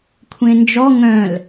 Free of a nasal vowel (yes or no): no